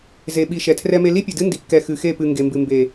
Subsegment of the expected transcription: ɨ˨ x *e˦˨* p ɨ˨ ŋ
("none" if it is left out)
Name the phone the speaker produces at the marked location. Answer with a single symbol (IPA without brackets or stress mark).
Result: e˦˨